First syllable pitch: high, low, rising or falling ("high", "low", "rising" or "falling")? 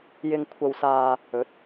low